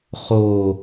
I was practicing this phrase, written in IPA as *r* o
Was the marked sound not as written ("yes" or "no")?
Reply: yes